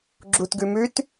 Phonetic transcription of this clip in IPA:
ɡ͡ǁutɡʉmʉt

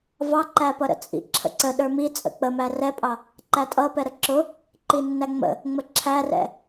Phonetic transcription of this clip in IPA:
vɑǃæpʌɾə̰ t͡sʼḭ ǁʰə̰ǀə ɗə˞mi t͡sʼə̰k͡pəmæ rɛpʼɑ | ǃætʼʌpɛ ɾəǁʊ | ǃinːæŋ͡mə̰ | ŋ͡məǁʰærɛ̰

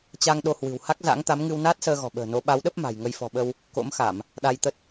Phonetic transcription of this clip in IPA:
t͡ɕa˧ŋɗo˧hwɨ̤˨˩w ha˦˥k̚za̰˧˥ŋt̪a˨˦mŋɨ˧w naː˦˥t̚səː˧ɣɔ̤˨˩ɓə̤ː˨˩ no˨˦ ɓa˨˦wɗə˦˥p̚ ma̤˨˩jŋə˧j fɔ̤˨˩ɓə˧w | ko̰˧˥mxa˧˩˨m | ɗa˧jt̪ə˦˥t̚

